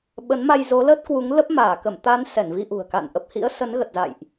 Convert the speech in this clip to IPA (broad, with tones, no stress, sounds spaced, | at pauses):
ɓ ə˨˦ n m a˧ j z o˨˦ l ə˦˥ t̚ k w u˨˦ ŋ l ə˦˥ p̚ m aː˧˩ k ə˧˩ m t̪ a˨˦ n s ɛ˧˩ n v i˧ ʔ ṳ˨˩ ə̯ k a̰˧˨ n ʔ ə˨˩ p̚ h ḭ˧˥ ə̯ s ə˨˦ n ɣ ə˨˩ t̚ z a̰˧˨ j ʔ